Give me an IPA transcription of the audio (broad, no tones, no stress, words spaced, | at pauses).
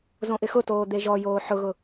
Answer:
zõʔɪxʊtoː d̪eʒɔjoː ħʊɣʊ